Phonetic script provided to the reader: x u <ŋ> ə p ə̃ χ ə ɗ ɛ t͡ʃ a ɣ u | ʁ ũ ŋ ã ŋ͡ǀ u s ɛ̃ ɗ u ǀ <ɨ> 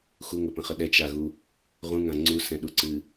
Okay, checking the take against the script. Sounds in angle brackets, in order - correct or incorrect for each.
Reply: correct, correct

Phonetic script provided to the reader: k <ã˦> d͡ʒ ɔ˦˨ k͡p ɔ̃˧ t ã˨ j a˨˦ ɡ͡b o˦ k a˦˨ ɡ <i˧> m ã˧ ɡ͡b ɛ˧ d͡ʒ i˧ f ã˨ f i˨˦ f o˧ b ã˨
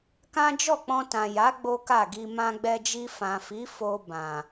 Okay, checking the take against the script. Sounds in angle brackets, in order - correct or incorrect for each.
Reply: correct, correct

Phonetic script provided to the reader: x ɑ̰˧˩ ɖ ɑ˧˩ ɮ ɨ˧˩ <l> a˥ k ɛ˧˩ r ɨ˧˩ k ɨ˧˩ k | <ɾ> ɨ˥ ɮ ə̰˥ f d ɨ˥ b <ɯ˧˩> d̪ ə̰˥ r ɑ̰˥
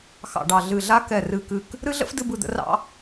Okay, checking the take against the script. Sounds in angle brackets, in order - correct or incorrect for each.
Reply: incorrect: ɮ, correct, correct

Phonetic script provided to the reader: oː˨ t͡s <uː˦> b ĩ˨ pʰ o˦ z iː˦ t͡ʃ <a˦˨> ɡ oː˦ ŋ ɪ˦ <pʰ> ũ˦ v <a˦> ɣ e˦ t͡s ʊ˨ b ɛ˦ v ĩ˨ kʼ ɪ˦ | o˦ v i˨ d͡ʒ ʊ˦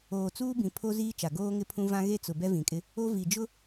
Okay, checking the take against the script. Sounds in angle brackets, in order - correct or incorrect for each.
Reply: correct, incorrect: a˨, correct, incorrect: ã˦

